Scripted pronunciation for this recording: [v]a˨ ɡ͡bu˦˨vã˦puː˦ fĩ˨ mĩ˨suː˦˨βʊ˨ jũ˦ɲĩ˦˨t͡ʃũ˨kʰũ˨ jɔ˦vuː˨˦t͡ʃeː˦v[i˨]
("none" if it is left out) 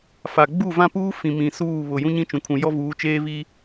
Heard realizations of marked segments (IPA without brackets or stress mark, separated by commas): f, i˦